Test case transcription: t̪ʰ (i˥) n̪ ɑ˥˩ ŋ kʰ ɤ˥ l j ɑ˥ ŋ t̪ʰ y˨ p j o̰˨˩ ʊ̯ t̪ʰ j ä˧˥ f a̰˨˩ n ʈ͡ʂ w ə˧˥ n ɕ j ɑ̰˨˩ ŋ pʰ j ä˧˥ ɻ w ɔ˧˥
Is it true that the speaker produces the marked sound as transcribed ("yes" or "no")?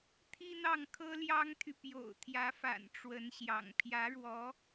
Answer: yes